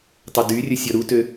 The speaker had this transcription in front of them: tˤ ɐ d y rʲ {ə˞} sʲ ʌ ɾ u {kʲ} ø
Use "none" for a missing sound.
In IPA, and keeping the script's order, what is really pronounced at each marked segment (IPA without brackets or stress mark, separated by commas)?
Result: ə, t